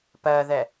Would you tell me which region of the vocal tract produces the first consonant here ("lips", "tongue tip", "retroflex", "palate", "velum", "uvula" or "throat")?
lips